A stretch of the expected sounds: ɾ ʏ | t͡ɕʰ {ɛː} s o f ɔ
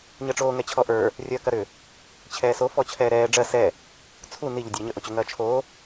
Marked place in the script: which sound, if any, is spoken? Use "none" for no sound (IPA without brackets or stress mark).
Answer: ɛː